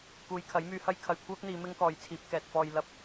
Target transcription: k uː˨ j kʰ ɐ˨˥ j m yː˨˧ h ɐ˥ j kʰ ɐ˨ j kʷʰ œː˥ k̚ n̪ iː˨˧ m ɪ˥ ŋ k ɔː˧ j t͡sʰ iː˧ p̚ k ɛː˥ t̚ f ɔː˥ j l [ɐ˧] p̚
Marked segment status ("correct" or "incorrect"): incorrect